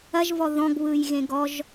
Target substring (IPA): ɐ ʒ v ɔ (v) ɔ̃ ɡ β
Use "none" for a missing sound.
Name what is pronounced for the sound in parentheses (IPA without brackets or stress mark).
ð